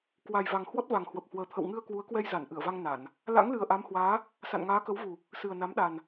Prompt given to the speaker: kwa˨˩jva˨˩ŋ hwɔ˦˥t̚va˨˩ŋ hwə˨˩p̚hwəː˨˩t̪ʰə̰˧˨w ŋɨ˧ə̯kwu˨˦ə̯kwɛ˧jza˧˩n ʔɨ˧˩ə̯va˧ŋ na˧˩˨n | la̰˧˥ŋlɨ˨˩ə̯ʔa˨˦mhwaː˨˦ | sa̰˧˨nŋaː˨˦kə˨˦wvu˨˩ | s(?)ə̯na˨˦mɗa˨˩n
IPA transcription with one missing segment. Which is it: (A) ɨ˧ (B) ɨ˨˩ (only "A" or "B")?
B